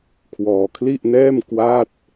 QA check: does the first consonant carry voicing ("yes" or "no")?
no